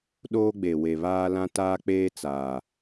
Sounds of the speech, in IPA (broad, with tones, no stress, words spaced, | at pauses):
ɗoː˦ɡ͡be˨ we˨βaː˦lã˦ taː˦k͡peː˦ t͡saː˨